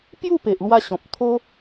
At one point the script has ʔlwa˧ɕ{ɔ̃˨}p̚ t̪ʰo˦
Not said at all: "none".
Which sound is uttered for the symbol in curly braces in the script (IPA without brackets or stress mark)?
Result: ɔ̃˨